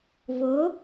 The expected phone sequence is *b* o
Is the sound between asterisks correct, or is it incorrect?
incorrect